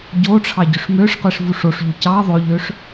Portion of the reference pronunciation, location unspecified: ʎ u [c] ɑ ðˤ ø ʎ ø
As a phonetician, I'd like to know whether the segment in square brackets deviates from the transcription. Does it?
no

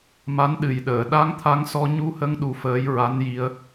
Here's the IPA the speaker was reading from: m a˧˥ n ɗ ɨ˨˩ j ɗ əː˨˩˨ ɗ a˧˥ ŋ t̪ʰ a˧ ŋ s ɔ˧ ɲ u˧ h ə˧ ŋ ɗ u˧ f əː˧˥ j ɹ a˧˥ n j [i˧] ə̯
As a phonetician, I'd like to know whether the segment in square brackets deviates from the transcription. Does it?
no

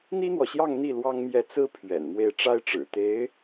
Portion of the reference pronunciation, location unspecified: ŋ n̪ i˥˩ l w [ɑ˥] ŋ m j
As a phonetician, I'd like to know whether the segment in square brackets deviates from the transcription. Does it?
no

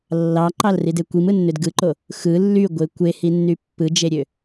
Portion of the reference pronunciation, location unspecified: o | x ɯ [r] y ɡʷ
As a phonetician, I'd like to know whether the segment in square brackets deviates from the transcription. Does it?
yes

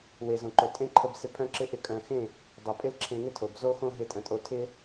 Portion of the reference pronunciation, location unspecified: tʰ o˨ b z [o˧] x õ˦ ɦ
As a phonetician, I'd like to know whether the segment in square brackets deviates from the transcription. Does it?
yes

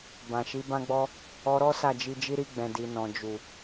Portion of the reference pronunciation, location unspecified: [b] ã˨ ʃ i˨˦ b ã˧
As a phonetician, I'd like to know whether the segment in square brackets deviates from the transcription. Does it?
no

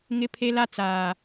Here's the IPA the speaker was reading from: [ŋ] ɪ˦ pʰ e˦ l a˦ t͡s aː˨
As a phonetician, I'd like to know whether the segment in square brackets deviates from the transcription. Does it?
no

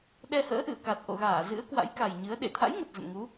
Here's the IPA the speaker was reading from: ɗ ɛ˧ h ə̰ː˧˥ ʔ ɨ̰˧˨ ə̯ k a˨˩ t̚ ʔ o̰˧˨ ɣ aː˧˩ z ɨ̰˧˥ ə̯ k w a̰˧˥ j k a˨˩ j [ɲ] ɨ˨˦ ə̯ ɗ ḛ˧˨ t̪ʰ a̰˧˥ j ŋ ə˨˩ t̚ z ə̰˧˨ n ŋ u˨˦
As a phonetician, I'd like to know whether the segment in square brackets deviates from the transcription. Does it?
no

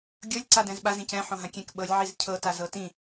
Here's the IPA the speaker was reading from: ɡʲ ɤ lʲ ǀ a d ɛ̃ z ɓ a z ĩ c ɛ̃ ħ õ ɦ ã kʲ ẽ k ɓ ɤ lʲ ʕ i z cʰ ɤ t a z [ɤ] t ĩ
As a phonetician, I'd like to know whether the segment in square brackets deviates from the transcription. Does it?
no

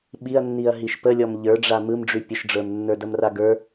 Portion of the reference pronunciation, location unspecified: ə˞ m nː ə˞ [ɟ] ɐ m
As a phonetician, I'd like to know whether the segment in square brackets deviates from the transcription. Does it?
yes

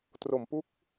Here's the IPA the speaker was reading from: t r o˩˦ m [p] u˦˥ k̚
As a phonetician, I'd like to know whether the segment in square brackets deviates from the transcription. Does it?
no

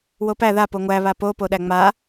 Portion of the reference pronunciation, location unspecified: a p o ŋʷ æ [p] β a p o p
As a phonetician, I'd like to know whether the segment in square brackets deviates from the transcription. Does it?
yes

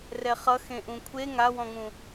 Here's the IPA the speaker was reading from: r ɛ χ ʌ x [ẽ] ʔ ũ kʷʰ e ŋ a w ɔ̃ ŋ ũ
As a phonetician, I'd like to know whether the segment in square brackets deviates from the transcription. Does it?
no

